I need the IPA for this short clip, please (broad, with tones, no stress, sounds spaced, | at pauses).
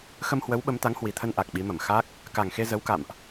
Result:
x ə˧ m h w ə˨˦ w ɓ ə˨˦ m t̪ a˨˦ ŋ h w i˨˩ t̪ʰ ə˧ n ʔ a˨˩ k̚ ɓ i˨˦ m ə˧˩ m x a˦˥ k̚ | k a˨˩ ŋ x e˧ z ə˨˦ w k a̰˧˨ m ʔ